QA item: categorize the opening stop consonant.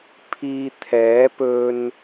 aspirated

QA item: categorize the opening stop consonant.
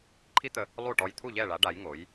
click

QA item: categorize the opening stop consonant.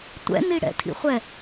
plain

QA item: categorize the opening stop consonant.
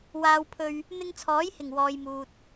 aspirated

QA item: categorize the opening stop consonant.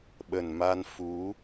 implosive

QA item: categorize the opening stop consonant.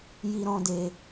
plain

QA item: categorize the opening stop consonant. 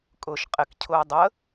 ejective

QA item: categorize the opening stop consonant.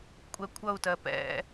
ejective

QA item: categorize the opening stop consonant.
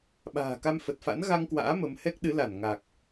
implosive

